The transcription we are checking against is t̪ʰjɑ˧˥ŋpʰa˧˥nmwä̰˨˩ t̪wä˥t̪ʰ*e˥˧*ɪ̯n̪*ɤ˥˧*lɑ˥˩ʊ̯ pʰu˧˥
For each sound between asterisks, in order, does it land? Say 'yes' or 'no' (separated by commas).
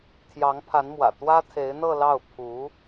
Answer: no, yes